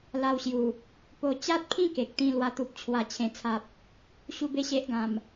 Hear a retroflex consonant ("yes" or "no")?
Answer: no